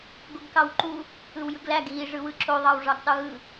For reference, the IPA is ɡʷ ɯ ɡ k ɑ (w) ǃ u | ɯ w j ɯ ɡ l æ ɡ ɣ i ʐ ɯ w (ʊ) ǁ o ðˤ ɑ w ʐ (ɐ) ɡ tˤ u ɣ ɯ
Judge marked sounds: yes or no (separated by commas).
yes, no, no